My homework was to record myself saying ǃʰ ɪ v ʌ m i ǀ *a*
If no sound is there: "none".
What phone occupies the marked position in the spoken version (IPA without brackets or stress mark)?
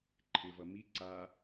a